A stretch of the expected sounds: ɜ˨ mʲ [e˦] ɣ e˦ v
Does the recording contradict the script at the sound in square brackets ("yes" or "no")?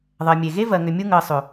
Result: yes